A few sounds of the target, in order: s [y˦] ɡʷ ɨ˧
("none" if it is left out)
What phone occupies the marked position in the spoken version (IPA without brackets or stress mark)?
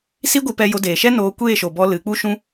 i˦